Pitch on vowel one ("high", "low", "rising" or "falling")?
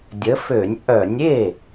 rising